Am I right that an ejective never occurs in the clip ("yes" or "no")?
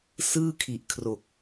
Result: yes